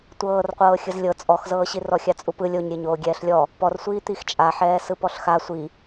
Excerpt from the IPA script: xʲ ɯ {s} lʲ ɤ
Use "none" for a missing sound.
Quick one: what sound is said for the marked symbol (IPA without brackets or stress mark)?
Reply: z